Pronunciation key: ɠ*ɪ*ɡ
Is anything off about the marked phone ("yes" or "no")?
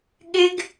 no